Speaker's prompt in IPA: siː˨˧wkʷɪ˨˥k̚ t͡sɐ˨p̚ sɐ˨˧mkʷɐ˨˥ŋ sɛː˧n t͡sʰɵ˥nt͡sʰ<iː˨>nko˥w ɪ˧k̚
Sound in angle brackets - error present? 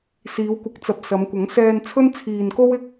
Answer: no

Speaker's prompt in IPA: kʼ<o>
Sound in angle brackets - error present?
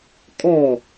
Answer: yes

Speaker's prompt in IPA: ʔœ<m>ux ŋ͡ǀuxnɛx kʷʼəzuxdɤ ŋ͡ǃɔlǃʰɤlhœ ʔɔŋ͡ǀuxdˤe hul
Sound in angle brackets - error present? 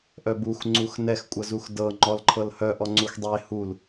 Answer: yes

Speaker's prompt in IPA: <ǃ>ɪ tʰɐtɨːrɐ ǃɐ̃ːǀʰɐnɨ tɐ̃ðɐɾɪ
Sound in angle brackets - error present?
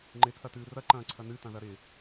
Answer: yes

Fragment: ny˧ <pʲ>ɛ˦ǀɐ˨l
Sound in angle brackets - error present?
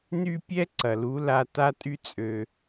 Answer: no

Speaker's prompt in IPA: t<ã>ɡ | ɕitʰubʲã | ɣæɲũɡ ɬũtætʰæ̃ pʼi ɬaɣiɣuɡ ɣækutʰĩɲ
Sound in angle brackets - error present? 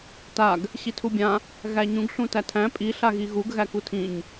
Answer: yes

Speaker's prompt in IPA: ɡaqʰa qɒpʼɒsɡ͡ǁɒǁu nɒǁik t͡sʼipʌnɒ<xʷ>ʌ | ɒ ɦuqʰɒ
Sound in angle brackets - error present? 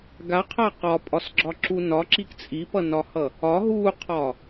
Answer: yes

